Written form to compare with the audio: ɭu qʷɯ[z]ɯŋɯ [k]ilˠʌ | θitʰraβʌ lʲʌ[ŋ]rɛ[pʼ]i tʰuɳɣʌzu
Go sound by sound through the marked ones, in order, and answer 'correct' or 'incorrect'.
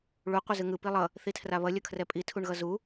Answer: correct, incorrect, incorrect, correct

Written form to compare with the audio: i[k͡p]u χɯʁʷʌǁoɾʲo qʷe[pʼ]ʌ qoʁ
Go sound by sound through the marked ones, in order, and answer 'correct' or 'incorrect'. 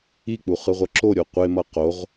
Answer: correct, incorrect

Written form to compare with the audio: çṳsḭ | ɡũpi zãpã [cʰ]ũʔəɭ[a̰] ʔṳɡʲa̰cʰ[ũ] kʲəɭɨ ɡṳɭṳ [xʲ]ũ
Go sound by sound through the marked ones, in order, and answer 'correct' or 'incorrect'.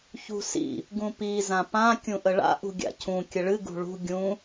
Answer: incorrect, correct, correct, incorrect

